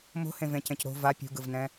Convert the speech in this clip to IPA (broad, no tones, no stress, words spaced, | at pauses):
mo̤hẽvẽcẽc ɾo̤ va pʲṳɡɯvnɛ̃